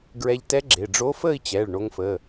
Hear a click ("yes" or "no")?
yes